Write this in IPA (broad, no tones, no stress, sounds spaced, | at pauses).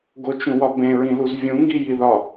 ɡ o t͡ʃ ũ w ɒ b ẽ ɹ ĩ l u z vʲ ũ ŋ ɡ i j i ð ɒ